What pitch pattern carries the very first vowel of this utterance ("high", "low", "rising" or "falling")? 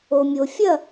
low